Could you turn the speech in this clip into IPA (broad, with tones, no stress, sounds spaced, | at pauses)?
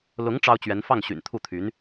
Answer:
l ʊ˧˥ ŋ ʈ͡ʂ ɑ˥ ʊ̯ t͡ɕ ɥ ɛ˧˥ n f ɑ˥˩ ŋ ɕ y̰˨˩ n t̪ʰ u˥˩ t̪ʰ y˧˥ n